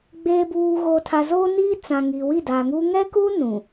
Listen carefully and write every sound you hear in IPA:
ɡ͡b eː˨ b uː˨ ɣ o˨ tʰ a˨ z oː˦ n iː˦ t͡s ã˨ ŋ i˨ w i˦˨ d aː˨ ŋ uː˦ ŋ ɛ˦ k uː˦ n ũ˨

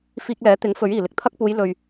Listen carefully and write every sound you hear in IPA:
f iː˧ k̚ l ɛː˨˥ t̪ ɪ˨˥ ŋ f ɵ˨˥ ɥ iː˨˩ l ɪ˨ k̚ t̪ʰ ɐ˥ k̚ p uː˨˧ j l ɵ˨ ɥ

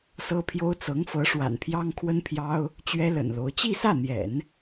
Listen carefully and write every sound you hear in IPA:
s ɤ˥ pʰ j o˥ ʊ̯ t͡s ɤ˧˥ ŋ f ɤ˧˥ ʂ w a̰˨˩ n pʰ j ɑ˥ ŋ kʰ w ə˥ n pʰ j ɑ˥ ʊ̯ | t͡ɕ ɥ ɛ˥ l ə̰˨˩ n l o˧˥ ʊ̯ t͡ɕ i˥˧ s ä˥˩ n̪ j ɛ̰˨˩˦ n

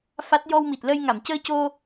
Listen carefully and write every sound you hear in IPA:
f a˦˥ t̚ j ɔ˧ w m i˨˩ t̚ l ə˧ j ŋ a˨˩˨ m c əː˧ c o˧

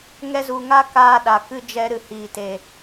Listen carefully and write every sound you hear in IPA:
ŋ ɛ˧ z u˨ ŋ a˦ k aː˧ ɗ a˨ k ɨ˦ d͡ʒ ɛ˧ ɾ ɨ˨ h iː˨ t e˨

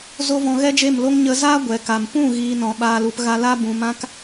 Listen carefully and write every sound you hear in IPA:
z o˦ v ɔ̃˧ ɣ ɛ˦ d͡ʒ e˦˨ m l o˦ ŋ ɲ ə˧ z aː˦ ɡʷ ɛ˨ k a˨ m p ũ˦˨ ɣ iː˧ n ɔ̃˨ ɓ aː˧ l u˧ p ɣ a˧ l a˦ b ũ˨ m ã˦ k

